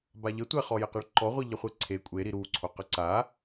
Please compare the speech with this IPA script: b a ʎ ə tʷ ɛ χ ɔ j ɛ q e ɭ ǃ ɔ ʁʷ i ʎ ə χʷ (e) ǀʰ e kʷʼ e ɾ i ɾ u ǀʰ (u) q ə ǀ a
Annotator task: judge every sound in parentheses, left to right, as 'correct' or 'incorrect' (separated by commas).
correct, incorrect